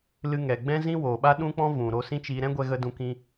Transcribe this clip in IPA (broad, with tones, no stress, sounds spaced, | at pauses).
l ɨ˧ ŋ ɛ˨ ɡ͡b ɛ̃˦ z ĩ˦ w oː˨ ɓ a˦ ɗ ũ˦ k͡p ɔ̃˦ v ũ˨ ɾ o˧ s ĩ˦ t͡ʃ iː˧ ɾ ɛ̃˦ ɡʷ ɛ˧ ɣ ə˧ d ũ˧ k ĩ˧